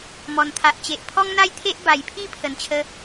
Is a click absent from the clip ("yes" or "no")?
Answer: yes